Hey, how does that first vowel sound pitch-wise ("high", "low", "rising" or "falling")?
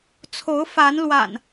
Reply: rising